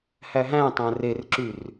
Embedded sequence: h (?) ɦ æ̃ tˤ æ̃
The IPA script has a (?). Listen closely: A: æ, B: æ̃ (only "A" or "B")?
A